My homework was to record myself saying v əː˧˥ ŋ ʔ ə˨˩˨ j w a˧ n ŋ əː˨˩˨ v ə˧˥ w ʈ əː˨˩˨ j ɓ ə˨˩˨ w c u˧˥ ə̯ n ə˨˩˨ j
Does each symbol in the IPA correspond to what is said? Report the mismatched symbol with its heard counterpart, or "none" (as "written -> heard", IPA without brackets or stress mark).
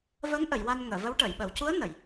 none